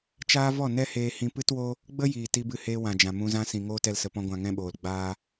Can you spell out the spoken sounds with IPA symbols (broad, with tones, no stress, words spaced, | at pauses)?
t͡ʃaː˦ vɔ˦˨ nɛ˦heː˧hĩ˧ pɨ˦two˦ | ɡ͡bə˦jiː˨ ti˧bɨ˧heː˧ wã˨d͡ʒã˨ mũ˧zã˦sĩ˨ ŋoː˦tɛ˧l sə˧pɔ̃˦ɡʷã˧ ŋɛ̃˦ɓoː˨l ɡ͡baː˦